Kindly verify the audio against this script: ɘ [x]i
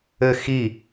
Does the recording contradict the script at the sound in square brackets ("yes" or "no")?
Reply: no